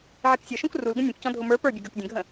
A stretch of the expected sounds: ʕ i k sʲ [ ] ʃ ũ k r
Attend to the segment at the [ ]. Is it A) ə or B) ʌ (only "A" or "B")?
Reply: B